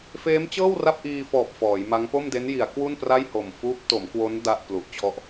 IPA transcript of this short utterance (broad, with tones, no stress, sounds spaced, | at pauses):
f eː˦˥ m t͡ɕ ɤː˥˩ w r a˥˩ p̚ ʔ iː˧ f ɔː˨˩ p̚ f ɔː˩˦ j m a˦˥ ŋ p o˥˩ m d e˦˥ n j i˩˦ a̯ k w u˥˩ n p r a˥˩ j h o˨˩ m f uː˦˥ p̚ t o˩˦ m k w o˦˥ n d a˥˩ ʔ p l u˨˩ ʔ t͡ɕʰ ɔ˦˥ ʔ